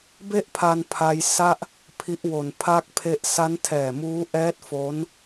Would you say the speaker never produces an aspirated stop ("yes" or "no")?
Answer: no